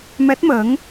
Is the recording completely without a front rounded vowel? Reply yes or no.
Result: yes